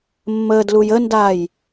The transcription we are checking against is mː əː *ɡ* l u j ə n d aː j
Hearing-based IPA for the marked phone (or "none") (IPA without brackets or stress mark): d